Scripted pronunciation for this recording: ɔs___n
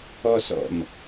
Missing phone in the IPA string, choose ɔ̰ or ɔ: ɔ̰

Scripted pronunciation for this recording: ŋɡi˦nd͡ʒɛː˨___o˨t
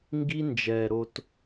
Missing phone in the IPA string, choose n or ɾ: ɾ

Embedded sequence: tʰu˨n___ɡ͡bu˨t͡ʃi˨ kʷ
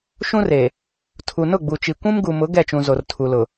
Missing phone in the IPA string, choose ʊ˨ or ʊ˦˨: ʊ˦˨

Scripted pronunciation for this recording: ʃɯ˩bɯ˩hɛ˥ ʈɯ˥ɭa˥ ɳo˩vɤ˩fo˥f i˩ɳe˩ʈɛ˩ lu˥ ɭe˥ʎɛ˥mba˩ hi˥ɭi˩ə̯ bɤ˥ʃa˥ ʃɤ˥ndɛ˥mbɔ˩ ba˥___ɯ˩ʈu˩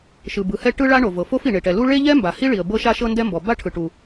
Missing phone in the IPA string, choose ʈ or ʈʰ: ʈʰ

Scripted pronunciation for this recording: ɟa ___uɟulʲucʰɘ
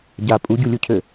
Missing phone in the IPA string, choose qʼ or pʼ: pʼ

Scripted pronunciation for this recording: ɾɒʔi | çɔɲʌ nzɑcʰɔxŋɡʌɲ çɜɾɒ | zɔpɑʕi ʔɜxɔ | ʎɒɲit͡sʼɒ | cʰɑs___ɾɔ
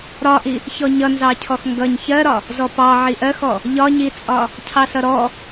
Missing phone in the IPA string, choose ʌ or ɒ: ʌ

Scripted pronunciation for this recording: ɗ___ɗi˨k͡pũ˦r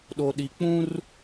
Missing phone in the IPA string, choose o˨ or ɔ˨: o˨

